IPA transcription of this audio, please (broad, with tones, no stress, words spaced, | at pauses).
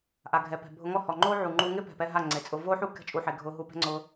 ʔa˨ɡʱɛ˨pɛ̤˨ bʱʊ˧ŋɔ˦˨hɔ˨ŋ͡ǃoː˦ ʕu˨ŋ͡ǃu˧ ŋɪ˦pɛ̤˨pɛ˧ ɦa˦˨ŋ͡ǀe˨t͡sʼʊ˧ vo˦ħu˦ kɛ̤˧t͡ʃʼu˨ħe˨ ɡʱʊː˧ɦu˧pɛ̤˦ŋ͡ǀʊː˧